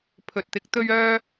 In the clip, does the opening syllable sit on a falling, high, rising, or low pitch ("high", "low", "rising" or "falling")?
low